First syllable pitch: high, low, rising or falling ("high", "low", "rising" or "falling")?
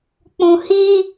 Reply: high